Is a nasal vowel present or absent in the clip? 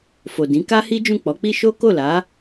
present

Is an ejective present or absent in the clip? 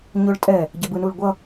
present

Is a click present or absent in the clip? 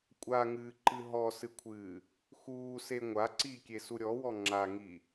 present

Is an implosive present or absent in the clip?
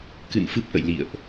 absent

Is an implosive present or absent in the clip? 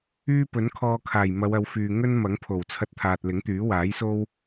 absent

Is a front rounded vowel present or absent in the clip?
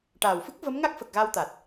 absent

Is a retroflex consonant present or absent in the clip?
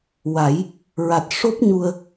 present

